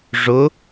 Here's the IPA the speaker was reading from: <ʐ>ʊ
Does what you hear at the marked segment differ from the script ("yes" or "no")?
no